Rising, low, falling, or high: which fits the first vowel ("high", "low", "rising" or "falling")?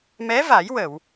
rising